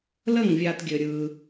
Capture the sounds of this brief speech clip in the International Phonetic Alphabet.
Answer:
l ə˥˩ ŋ vʲ a˨ t ɡʲ ɘ˨ ɾʲ ɯ˨

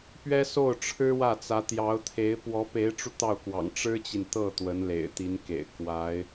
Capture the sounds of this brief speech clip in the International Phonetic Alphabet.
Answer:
p ɥ ɛ˥ s o˥˩ ʊ̯ ʈ͡ʂʰ ɻ̩˥ w ä˥˩ t͡s ä˧˥ t̪ j ɑ˧˥ ʊ̯ t̪ʰ e˧˥ ɪ̯ p w ɔ˧˥ p e˧˥ ɪ̯ ʈ͡ʂ u˧ t̪ ɑ˥˩ ʊ̯ k w ɑ̰˨˩ ŋ ʈ͡ʂ ɻ̩˥ t͡ɕ i˨ n t̪ ɤ˥˩ t̪ w ə˧˥ n l ḛ˨˩ ɪ̯ t̪ i˧˥ n k ḛ˨˩ ɪ̯ k w a˧˥ ɪ̯

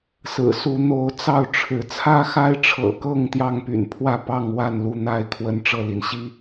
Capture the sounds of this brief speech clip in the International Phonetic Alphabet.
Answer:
s ɹ̩˨˩ s u˨˦ n̪ o˨˦ ʊ̯ t͡s ɑ˥˨ ʊ̯ ʈ͡ʂʰ ɻ̩˨˦ t͡sʰ ä˦ x a˦ ɪ̯ ʈ͡ʂʰ ɤ̰˨˩ k ɤ˥˨ ŋ t̪ j ɑ˥˨ ŋ p y̰˨˩ n pʰ w ä˥˨ p ɑ˥˨ ŋ w a˥˨ n l u˥˨ n̪ a˥˨ ɪ̯ kʰ w ə˦ n ʈ͡ʂ ɤ˥˨ l i˩ n ɕ i˦

